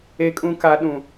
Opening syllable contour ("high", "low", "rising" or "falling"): high